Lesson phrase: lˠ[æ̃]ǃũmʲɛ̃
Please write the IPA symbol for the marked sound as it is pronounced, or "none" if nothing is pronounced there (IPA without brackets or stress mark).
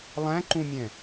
æ̃